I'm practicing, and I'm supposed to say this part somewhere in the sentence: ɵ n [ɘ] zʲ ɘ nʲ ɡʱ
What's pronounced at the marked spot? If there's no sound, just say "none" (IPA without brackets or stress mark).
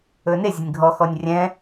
e